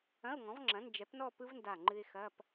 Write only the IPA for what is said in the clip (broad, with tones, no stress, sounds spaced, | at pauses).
ɐ̃˧˥˧ ʊ̯ ŋ ɔ̃˩˥ v ŋ͡ǁ ɐ̃˩˥ n d͡ʒ ɛ˩˥ p n ɔ˥˧ p ɯ˦˥ v n d a˧˩ ŋ͡ǃ ɨ˧ ɪ̯ x ɐ˧˥˧ p